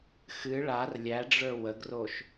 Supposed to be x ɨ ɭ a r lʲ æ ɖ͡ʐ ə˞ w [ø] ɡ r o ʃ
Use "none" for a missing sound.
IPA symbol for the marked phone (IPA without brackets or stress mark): ə